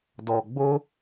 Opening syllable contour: low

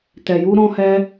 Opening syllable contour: low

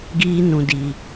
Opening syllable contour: high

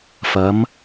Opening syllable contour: rising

